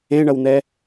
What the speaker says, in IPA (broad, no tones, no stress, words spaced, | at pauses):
ẽɳʌwn̪ɛ